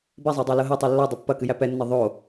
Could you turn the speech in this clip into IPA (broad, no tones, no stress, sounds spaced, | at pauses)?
b ɛ zˤ ɤ dˤ æ l ɤ ɦ ɛ tˤ ɛ lː o dˤ ɤ pː ɐ k ɨ j æ p ɛ nː ɤ ðˤ o